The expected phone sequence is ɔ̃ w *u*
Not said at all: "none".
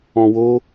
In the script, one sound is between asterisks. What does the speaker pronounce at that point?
o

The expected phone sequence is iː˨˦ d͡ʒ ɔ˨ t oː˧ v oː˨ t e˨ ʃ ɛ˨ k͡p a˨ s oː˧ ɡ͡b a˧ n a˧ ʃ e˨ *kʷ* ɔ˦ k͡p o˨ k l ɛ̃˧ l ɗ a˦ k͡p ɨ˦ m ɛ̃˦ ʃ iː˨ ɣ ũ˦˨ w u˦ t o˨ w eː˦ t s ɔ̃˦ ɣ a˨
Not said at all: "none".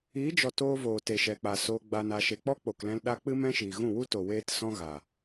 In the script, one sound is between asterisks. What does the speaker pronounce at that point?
k͡p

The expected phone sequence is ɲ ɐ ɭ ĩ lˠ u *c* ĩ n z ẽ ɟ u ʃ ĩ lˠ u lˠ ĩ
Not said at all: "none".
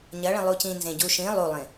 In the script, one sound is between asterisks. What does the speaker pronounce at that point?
c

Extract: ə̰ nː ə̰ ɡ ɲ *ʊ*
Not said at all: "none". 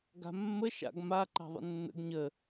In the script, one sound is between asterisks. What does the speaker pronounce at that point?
ə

